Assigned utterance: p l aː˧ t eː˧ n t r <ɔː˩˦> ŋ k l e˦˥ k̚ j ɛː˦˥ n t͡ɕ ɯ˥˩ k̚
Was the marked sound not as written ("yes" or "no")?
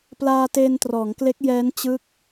no